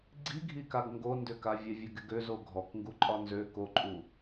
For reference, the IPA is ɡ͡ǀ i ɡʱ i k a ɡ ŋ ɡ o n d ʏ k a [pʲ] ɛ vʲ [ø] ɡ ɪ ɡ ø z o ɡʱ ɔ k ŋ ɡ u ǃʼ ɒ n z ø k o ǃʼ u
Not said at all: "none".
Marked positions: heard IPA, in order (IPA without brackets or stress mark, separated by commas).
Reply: vʲ, ø